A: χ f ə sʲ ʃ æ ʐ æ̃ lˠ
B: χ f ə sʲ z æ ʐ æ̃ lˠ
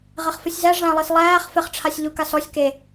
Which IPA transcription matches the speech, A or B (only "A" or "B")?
B